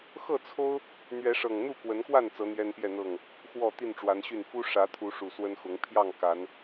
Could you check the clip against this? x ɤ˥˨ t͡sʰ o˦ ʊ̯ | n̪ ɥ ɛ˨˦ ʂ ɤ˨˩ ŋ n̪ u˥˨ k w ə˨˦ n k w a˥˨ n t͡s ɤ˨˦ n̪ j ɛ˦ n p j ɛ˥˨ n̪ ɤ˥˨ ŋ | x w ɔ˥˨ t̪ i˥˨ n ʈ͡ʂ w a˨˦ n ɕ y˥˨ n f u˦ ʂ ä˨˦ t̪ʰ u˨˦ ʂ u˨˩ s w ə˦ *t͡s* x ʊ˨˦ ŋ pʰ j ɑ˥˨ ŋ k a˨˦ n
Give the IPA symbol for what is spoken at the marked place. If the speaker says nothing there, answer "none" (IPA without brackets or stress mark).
n